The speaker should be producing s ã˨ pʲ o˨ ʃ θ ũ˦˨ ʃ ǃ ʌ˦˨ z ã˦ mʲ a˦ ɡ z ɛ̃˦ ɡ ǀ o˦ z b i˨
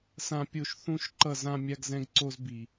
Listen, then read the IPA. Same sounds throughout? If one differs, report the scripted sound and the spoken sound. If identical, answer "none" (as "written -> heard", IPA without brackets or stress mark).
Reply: none